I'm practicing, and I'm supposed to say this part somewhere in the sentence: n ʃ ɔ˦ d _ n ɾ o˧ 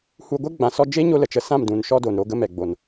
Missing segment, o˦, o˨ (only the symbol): o˨